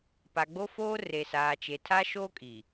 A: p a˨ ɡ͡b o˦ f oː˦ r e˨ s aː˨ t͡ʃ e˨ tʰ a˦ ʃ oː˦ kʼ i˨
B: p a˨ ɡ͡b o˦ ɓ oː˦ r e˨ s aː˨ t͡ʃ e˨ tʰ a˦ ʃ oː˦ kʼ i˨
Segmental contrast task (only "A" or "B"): A